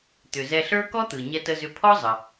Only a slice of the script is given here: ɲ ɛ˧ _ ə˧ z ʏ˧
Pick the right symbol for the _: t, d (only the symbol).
t